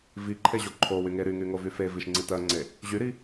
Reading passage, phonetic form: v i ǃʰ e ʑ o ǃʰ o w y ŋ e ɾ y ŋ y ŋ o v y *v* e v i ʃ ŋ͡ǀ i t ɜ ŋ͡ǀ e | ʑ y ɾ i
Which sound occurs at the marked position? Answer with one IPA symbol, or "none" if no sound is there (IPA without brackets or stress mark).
f